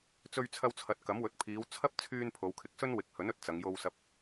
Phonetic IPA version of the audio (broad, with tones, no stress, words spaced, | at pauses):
t͡sɵ˧ɥt͡sʰɐ˧wt͡sʰɐ˨˥t̚ kɐ˨˥mwɵ˨˥t̚pʰiː˨˧w t͡sʰɐ˥p̚ t͡sʰyː˧n pʰo˨˧wkʰɪ˨˥k̚sɵ˥n wɪ˨˥k̚hɵ˨˥nɵ˨t̚ t͡sɐ˨˧ŋjo˧w sɐ˨p̚